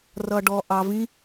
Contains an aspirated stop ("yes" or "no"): no